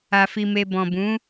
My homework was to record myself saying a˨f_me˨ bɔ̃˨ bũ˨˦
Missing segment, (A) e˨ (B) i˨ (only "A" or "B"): B